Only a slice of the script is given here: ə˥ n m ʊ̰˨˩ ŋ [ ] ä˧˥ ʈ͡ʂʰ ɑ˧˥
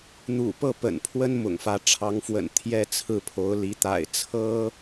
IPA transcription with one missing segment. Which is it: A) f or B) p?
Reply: A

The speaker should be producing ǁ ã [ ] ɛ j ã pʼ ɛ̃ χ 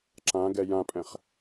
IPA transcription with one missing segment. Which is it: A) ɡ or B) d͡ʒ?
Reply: A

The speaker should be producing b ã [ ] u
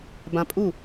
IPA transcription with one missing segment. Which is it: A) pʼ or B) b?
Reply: A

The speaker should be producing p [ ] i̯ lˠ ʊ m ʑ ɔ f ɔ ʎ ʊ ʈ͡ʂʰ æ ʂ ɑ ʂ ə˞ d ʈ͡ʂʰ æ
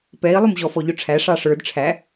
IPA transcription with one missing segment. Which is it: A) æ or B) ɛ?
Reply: B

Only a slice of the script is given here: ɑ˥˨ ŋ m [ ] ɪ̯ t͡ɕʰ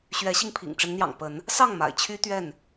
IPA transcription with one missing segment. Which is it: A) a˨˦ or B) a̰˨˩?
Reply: B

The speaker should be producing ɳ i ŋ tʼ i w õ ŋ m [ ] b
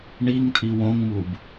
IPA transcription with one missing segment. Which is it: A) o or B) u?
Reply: B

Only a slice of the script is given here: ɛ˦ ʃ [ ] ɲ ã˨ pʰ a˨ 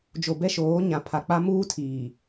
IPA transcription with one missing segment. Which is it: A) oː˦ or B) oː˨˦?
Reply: B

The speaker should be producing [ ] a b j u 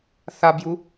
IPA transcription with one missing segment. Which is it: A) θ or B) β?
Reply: A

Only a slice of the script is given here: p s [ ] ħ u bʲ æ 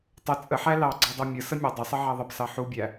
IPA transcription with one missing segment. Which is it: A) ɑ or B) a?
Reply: A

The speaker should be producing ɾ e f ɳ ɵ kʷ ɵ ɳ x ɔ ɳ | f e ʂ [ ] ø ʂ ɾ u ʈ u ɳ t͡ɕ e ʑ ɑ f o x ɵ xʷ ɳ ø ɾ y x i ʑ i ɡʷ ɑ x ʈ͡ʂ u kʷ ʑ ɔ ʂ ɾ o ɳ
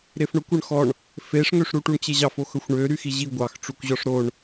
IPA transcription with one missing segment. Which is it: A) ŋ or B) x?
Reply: A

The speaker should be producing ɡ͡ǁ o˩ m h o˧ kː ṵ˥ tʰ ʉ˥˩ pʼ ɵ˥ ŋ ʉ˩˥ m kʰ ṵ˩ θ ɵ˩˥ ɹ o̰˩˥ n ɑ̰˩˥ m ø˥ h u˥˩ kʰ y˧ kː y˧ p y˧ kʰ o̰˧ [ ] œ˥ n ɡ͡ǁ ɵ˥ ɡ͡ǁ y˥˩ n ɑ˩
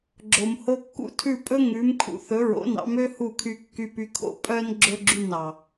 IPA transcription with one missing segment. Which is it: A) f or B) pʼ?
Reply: B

